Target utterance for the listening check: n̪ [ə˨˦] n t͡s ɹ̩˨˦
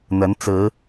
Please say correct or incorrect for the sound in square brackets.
correct